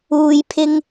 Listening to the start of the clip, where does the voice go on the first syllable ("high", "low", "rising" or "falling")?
low